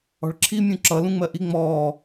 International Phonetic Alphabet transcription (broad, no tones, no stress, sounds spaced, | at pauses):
ɔ̤ ɭ ǁʰ i mʲ ũ ǁ ʌ l ũ ŋ͡m ɜ ʔ i ŋ͡m ɔː